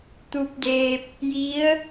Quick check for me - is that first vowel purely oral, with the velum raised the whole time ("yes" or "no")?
yes